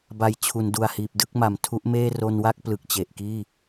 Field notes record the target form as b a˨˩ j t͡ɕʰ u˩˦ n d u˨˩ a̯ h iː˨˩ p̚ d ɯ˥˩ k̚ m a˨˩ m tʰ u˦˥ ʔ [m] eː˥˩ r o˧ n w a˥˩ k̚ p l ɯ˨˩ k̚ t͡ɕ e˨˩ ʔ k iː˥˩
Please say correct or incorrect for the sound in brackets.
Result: correct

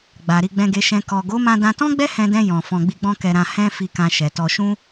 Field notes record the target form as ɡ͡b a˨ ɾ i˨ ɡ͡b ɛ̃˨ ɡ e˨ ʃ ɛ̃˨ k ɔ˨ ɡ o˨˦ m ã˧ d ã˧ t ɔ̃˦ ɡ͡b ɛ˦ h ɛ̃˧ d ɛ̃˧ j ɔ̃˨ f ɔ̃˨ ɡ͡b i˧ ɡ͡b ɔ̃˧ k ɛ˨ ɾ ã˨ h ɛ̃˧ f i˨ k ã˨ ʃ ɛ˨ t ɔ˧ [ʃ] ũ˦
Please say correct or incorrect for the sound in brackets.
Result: correct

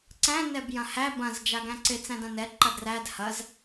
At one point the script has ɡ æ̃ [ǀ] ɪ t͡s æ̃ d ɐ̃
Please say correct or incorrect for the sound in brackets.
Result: correct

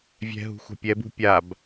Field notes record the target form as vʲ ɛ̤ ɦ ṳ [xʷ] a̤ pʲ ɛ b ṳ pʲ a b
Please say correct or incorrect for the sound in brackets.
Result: correct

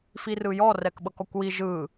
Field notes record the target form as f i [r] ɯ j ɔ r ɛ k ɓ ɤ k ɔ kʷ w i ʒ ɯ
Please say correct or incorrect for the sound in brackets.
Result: correct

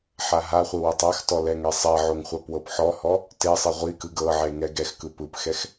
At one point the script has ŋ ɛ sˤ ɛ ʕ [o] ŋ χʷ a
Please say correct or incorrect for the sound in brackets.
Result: correct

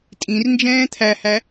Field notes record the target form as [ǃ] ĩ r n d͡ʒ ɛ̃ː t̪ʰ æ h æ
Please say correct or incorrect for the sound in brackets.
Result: incorrect: tʼ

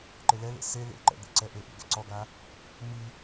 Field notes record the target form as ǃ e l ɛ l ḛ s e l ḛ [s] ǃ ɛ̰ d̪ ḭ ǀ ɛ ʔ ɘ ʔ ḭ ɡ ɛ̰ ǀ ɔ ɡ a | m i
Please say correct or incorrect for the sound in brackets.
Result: incorrect: none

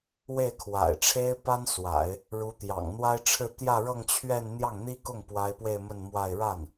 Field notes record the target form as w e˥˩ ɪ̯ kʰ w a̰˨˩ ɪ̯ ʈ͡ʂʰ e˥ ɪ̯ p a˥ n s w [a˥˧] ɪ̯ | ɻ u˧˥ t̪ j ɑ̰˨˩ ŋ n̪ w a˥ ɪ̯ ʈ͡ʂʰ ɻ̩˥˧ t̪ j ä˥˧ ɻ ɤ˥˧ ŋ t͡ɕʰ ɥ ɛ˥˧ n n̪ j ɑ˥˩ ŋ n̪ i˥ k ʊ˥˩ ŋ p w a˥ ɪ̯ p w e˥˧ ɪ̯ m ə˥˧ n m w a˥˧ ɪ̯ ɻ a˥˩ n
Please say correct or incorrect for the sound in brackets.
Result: incorrect: a̰˨˩˦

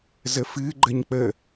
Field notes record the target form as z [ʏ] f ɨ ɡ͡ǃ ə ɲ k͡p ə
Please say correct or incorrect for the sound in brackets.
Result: incorrect: ə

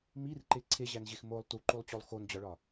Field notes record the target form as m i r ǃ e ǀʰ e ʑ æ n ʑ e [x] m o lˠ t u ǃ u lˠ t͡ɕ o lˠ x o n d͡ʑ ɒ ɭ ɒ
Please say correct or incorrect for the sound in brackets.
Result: correct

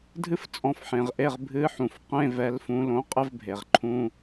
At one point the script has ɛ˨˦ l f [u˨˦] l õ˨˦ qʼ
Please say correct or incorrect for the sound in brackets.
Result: incorrect: ũ˨˦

